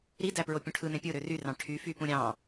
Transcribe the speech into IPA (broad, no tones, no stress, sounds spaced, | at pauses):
ɾ i d æ p ɹ o pʲ ũ ʈʰ ɯ n ẽ pʲ ɯ ɾ ø r y r ɑ̃ ʈʰ y f y p ũ ɾʲ ɑ̃